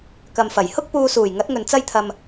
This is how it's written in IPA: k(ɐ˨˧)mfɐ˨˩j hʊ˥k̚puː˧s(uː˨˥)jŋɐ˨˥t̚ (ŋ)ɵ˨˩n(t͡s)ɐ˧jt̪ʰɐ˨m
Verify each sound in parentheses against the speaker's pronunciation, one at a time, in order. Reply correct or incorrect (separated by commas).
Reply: incorrect, incorrect, correct, correct